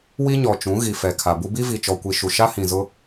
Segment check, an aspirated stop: present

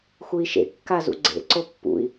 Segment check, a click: present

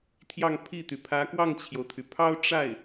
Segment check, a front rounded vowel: present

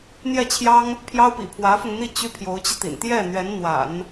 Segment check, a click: absent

